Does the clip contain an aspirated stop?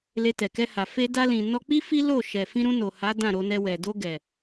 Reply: no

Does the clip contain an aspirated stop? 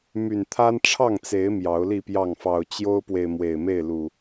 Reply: yes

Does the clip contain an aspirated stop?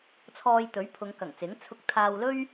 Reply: yes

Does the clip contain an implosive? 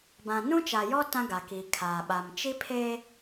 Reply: yes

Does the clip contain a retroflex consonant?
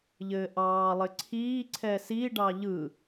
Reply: yes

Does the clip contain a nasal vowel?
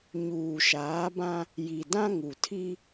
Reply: yes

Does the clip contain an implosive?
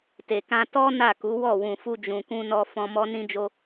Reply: no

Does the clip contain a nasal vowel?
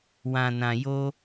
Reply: yes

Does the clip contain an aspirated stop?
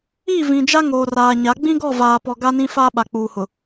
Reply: no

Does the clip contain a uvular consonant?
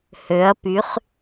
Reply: yes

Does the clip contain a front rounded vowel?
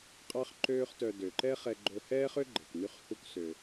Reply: yes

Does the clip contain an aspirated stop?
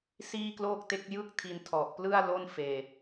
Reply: yes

